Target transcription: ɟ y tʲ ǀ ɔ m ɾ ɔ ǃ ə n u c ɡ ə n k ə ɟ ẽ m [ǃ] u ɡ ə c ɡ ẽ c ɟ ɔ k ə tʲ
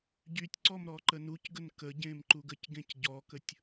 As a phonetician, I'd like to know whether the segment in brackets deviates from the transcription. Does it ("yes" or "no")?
no